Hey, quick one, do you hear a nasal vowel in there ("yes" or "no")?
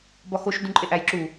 yes